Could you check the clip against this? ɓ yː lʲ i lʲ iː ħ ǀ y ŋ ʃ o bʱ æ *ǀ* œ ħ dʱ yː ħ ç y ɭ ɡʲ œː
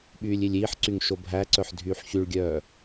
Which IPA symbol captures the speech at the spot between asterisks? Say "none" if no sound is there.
ǀ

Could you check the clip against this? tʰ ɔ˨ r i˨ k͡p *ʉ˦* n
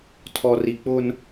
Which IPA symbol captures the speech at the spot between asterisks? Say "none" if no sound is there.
ʊ˦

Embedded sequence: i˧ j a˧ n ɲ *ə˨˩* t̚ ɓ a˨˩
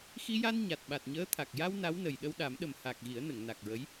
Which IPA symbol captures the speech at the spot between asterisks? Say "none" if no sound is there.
a˨˩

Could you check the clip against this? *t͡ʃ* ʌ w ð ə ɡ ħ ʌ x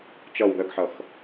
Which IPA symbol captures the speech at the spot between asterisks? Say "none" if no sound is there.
t͡ʃ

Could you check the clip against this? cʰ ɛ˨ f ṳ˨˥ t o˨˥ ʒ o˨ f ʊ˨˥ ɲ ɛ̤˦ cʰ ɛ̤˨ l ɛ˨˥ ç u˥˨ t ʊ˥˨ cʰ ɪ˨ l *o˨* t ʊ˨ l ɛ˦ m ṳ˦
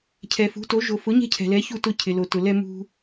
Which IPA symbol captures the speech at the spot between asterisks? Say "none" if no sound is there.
o˨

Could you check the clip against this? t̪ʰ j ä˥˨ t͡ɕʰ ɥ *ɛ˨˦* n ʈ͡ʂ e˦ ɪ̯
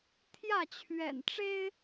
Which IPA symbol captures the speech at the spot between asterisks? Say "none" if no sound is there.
ɛ̰˨˩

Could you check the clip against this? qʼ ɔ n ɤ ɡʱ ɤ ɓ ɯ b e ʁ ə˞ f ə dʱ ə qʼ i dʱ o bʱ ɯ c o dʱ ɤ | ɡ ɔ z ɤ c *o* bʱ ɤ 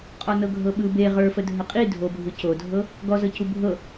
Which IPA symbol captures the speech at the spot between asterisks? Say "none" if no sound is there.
u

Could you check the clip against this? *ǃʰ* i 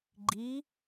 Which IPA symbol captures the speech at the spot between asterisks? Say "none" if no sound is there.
ɡ͡ǃ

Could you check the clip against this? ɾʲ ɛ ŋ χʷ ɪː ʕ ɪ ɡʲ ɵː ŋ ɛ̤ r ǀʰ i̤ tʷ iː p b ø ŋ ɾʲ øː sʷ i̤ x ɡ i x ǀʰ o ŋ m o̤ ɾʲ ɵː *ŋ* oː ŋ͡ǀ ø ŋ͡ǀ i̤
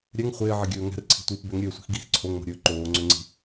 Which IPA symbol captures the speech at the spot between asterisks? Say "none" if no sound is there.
ǃ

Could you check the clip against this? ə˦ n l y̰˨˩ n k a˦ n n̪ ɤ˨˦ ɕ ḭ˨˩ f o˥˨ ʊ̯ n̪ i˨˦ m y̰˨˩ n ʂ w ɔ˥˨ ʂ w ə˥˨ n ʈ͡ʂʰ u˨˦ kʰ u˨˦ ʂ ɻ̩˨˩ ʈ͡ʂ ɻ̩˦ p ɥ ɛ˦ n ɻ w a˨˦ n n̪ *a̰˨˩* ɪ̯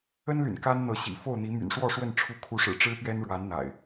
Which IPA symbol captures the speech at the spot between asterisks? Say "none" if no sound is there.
a̰˨˩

